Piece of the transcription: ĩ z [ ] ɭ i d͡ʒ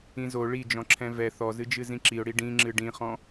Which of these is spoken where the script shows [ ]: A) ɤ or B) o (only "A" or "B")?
B